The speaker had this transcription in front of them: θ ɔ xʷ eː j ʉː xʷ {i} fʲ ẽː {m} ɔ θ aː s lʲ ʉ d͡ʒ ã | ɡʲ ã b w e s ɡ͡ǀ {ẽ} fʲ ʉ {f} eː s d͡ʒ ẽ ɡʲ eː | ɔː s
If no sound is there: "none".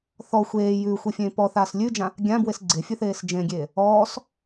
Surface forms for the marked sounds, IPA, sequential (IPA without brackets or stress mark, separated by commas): e, p, e, θ